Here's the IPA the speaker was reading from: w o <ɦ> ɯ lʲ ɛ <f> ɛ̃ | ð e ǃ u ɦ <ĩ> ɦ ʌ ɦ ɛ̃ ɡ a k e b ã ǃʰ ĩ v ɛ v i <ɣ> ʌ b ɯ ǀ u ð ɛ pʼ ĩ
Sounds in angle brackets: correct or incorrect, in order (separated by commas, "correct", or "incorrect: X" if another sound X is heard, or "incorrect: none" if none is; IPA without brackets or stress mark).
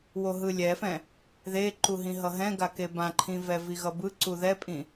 correct, correct, correct, correct